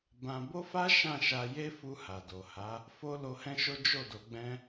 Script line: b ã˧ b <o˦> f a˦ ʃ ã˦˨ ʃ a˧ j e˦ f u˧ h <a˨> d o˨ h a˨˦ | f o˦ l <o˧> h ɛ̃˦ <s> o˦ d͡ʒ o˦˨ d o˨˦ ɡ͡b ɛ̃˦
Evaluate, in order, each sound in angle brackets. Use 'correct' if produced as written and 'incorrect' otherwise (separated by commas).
correct, correct, correct, incorrect